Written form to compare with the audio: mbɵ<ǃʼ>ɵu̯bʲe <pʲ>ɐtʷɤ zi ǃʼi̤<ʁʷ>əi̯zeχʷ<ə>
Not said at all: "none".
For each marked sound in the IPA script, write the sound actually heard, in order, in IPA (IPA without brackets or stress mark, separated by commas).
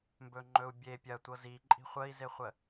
ŋ͡ǃ, pʲ, χʷ, ə